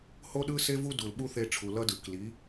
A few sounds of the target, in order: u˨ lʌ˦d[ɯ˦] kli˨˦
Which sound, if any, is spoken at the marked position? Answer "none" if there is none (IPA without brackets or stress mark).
ɯ˨